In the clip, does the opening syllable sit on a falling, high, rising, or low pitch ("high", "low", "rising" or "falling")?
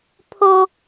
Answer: high